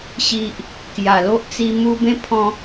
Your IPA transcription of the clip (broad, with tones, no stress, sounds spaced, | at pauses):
ɕ i˨ ʔ | k j a˨˩ l o˦ ʔ t͡s i˧ m u˧ b ẽ˦ pʰ ɔ̃˧